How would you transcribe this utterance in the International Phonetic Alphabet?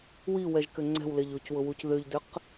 w i w ɛ ʒ k ʏ ŋ͡ǀ ɛ̤ w l e ʎ ʊ c w ʊ w u c ð ʏ ʎ d ʏ q

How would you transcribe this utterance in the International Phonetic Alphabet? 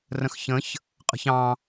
r ə̃ x ç ə̃ ç | qʼ ə̤ ç ɑ̃

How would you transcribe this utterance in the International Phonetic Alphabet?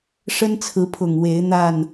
ʂ ə˦ n t͡sʰ ɹ̩˨˦ pʰ ʊ˨˩ ŋ w e˨˦ ɪ̯ n̪ a˥˨ n

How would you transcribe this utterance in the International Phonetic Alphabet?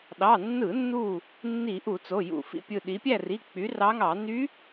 ɗ ɑ˩˧˩ nː ɯ˧˩˧ nː u˧˩ | nː i˧˩˧ ʔ u˧˩˧ t͡s o˩˧˩ j ṵ˧˩ f ḭ˥˨ pʲ ɯ˧˩ ɗ i˩˧ pʲ æ˥˨ r i˩˧˩ k͡p y˩˧ r ɑ˧˥ ŋ ɑ˧˩˧ n y˧˥

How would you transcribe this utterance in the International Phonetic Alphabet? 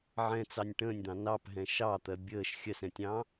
ʕ ɛ̃ t͡s ɑ nʲ ʈ ə̃ː nʲ d̪ ɑ̃ n ɑ p ɦ ɛ̃ ʃ ɑ t̪ ɜ bʲ əː ʃ xʲ ɜ s ɛ̃ tʲ ɑ̃

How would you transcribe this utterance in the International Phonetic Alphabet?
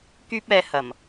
k yː˥ p̚ ɛː˧ h ɐ˨˩ m

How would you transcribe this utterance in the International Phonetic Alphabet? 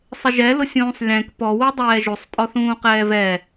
sˤ ɪ ʒ ɛ l ʊ sʲ ũː sˤ lʲ ɛ̃ k p ɔ w u dˤ ɛː ʒ u sˤ tʼ ɔ θ ũː q ɛː v ɛ

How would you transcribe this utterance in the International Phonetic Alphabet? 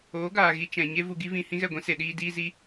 oː˨˦ ɡ aː˨ ɣ i˧ t͡ʃ ɛ̃˨ ɲ e˦ v u˧ ɡ i˦ v ĩ˧ h ĩ˦ ɣ ɛ˦˨ ɡʷ ĩ˦ s e˨ ɗ iː˧ d iː˦ z i˦

